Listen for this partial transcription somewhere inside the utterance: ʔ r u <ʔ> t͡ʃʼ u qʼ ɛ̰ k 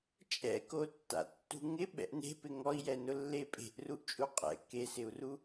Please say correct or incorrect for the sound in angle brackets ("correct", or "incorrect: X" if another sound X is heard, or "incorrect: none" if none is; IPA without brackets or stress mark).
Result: correct